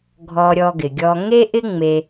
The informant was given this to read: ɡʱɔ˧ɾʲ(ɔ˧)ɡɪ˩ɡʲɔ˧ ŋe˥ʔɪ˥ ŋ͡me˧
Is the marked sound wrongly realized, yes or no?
no